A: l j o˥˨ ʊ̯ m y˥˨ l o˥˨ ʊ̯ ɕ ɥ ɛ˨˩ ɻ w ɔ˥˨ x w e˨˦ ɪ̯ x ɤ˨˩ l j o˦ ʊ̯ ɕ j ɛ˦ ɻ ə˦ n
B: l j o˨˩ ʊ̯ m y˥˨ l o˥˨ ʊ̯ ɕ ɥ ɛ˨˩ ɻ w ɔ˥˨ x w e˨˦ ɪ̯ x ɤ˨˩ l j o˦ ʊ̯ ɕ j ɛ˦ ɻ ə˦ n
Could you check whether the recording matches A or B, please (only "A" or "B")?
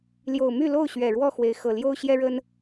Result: B